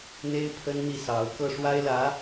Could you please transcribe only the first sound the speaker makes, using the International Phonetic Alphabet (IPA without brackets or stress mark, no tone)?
n̪